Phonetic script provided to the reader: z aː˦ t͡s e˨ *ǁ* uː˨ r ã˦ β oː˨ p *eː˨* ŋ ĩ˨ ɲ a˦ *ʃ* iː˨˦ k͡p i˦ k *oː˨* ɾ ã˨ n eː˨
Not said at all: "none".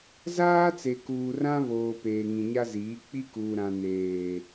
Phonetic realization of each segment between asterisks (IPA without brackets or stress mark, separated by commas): k, eː˨, z, uː˨